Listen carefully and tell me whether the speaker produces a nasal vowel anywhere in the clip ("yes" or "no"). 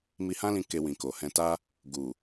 yes